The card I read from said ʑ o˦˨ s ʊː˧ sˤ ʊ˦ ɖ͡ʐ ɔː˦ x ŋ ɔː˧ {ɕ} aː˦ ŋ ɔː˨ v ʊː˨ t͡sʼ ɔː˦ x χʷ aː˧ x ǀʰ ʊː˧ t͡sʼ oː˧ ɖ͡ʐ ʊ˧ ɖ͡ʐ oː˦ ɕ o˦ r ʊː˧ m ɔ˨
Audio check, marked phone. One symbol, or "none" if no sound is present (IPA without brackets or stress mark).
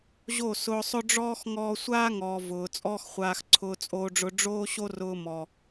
sʷ